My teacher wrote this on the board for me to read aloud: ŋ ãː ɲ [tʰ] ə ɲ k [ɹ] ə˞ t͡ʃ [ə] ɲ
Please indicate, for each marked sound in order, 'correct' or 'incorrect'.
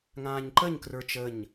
incorrect: ǃ, incorrect: r, correct

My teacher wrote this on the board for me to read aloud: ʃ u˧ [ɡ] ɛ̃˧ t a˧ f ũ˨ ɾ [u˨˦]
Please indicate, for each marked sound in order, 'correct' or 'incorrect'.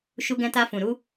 correct, correct

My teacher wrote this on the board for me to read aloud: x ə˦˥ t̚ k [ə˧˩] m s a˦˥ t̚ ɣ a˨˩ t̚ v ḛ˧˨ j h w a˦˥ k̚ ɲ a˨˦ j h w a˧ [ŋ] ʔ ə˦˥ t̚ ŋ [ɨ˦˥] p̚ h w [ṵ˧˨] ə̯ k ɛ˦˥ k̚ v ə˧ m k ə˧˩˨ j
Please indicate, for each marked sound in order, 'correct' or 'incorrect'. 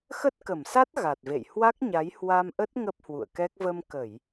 correct, incorrect: m, incorrect: ə˦˥, correct

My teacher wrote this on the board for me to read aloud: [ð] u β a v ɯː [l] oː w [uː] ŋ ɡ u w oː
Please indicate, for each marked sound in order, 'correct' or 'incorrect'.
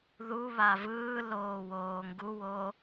correct, correct, incorrect: oː

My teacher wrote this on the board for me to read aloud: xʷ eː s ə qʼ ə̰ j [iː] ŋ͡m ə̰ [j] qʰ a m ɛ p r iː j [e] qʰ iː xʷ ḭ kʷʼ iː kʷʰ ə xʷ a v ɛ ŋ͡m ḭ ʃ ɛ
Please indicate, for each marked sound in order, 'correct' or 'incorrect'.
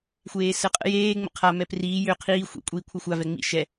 incorrect: eː, incorrect: none, incorrect: ø

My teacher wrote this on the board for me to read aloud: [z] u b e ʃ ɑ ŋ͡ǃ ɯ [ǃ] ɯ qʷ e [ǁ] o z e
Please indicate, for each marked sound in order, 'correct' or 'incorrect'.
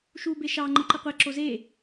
incorrect: ʃ, correct, correct

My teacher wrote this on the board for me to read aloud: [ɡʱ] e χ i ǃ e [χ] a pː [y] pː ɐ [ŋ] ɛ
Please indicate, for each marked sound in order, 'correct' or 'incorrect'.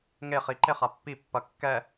incorrect: ŋ, correct, incorrect: i, incorrect: kː

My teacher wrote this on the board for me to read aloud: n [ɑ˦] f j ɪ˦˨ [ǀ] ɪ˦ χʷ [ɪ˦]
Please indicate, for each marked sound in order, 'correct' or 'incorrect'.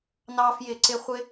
correct, correct, correct

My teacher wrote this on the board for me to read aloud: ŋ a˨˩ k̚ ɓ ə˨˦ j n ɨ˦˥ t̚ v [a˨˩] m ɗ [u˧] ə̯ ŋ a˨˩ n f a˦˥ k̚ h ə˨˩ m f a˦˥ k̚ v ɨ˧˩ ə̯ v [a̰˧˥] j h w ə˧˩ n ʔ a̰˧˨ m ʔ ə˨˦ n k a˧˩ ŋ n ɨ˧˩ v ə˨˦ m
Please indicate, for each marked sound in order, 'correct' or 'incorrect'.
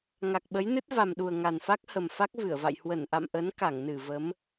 correct, incorrect: u˨˩, incorrect: a̰˧˨

